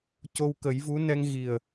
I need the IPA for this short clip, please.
c o˧ w k ə˨˩˦ j v u˧˥ n ɛ˧ ŋ ɣ i˨˩ ə̯

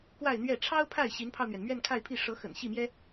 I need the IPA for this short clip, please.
k w a˥˧ ɪ̯ n̪ ɥ ɛ˥˩ ʈ͡ʂʰ ɑ˥ ʊ̯ pʰ a˥˩ ɪ̯ ɕ i˧˥ n pʰ ɑ˧ ʊ̯ n̪ ɥ ɛ˩ n m ɥ ɛ˥˧ n kʰ a˥˧ ɪ̯ pʰ i˥˩ ʂ ɤ˧˥ x ə̰˨˩ n ɕ i˥˩ m j ɛ˥

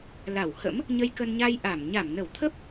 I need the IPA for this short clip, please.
l a˧˩ w h ə̰˧˥ m | ɲ ə˧ j k ə˧ n ɲ a˧ j ʔ a˧˩ m ɲ a˧˩ m n ə˧˩ w t̪ʰ ə˦˥ p̚

